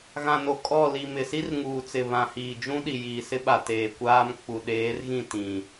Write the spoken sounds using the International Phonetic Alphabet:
ɣã˨no˨ kʼɔ˦˨ li˨mɪ˨si˦r ŋuː˨t͡sɪ˨ βã˨hiː˨d͡ʒũ˦ɗi˨ jiː˨sɪ˦ɓa˨ teː˨kʷaː˦m k͡pu˨ɗeː˨˦rɣĩ˦˨ tĩ˨

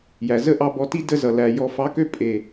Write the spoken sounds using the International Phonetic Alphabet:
jæ˨zə˦ʔɑ˧ bɔ˧ti˦ də˧zʌ˨ læ˨ jɔ˨fɑ˨˦kø˧ pʼe˨

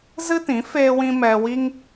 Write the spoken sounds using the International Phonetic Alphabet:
zɨ˦tĩ˨˦ feː˦wĩ˦ mɛ˧wi˦ŋ

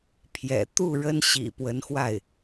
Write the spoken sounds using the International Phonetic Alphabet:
pʰjɛ̰˨˩ t̪u˥˩ ɻə˥nɕḭ˨˩pwə˧˥nxwa˥˩ɪ̯

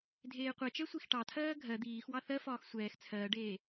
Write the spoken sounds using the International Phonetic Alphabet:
dʱeːqʷɛt͡ʃɛ sʷixʈɑtʰɜː ɡʱɜ d̪iːxwɑ θɜfɒːx sʷɛːx t͡sʰɜːɖeː

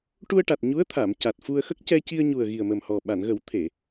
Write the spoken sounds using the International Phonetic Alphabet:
ʈu˧ə̯ʈa˨˩t̚ ɲu˧˥ə̯t̪ʰa˨˩˨m ca˨˩t̚fu˧ə̯xə˦˥k̚ cɛ˧ci˧ə̯ɲu˨˩ə̯ ɣi˨˩ə̯mə˨˩mhɔ˨˩ ɓa˨˩˨nɣə˨˩˦w t̪ʰe˨˩˨

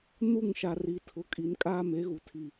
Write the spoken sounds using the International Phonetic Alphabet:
nu˦˨ŋʃa˨ri˨ tʰʊ˨kʼi˨nkʼaː˦ me˨˦ɣu˨ tʰi˦˨

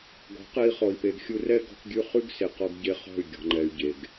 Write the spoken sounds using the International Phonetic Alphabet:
ɡɔ̤˨˦qe˧i̯χɔ˨i̯pe˨ɡ xʲu˧rɛ˦ ɡɔ̤˧kɡʲʉ˧ χʉ˦ɡse˨ qɔ˧ɡ ɟe˧χɔ̤˦˨y̯ ɡʲɔ̤˨ŋ͡ǃɛ˨y̯ ɟe˨ɡ

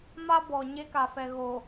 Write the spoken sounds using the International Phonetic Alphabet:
ma˦ bɔ˨ɲe˦ka˨fɛ˨ ɣo˨

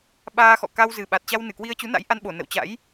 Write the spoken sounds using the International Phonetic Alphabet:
ɓaː˧xɔ̰˧˨ ka˧wzɨ˨˩ɓa˨˩t̚t͡ɕa˧w nɨ˧˩kwi˧ə̯t͡ɕu˨˦na̰˧˥j ʔa˧nɓo˧˩nə̰˧˨wt͡ɕa̰˧˥j

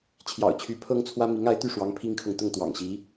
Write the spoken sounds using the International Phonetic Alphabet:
t͡ɕʰjɑ̰˨˩ʊ̯t͡ɕʰy˧˥ pʰɤ˥ŋt͡sʰwä˥ mi˧˥ŋa˧˥ɪ̯t̪y˥˩ʂwɑ˧˥ŋ pʰi˥ŋkʰɤ˨ŋ t̪ʊ˥˩ŋt̪wɑ̰˨˩ŋɕi˧˥

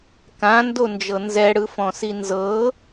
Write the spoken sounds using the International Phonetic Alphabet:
kãndond͡ʒɤ nzɛɽɯfɔ̃si nzɤ

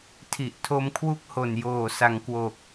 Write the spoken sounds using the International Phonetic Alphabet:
tʰi˨˩ʔ tʰo˧mkʰwu˦˥k̚ ho˨˩njoː˨˩sa˩˦ŋ kwo˨˩k̚

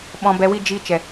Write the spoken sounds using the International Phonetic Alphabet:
ɓɔ̃˧bɛ˧wi˦ d͡ʒi˧ t͡ʃɛ˨

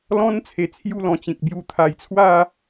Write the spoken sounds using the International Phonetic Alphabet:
lɔ̃˦n t͡sʰe˨˩t͡sʰju˥˧lɔ̃˨˩t͡ɕĩ˨k̚ bju˨˩ t̪ʰa˨˩jt͡sʰwa˥˧

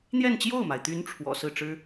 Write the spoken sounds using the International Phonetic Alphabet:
n̪jɛ˥˧nt͡ɕjo˥˩ʊ̯ma˩ɪ̯t̪y˧˥n ʈ͡ʂʰwɔ̰˨˩ sɹ̩˥˩ʈ͡ʂɻ̩˥

